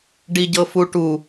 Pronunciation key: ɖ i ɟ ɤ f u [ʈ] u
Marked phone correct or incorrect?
correct